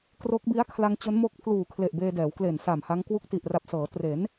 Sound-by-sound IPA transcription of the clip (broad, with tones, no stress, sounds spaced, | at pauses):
k r o˦˥ k̚ b i˦˥ a̯ kʰ l a˧ ŋ t͡ɕ o˦˥ n m o˦˥ k̚ pʰ l uː˨˩ kʰ l e˨˩ ʔ b eː˧ d ɛː˩˦ w k l e˨˩ n s a˨˩ m h a˦˥ ŋ k w u˦˥ k̚ t i˨˩ ʔ r a˨˩ p̚ s ɤː˩˦ t r e˩˦ n